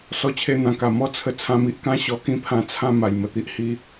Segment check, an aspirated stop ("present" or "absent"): present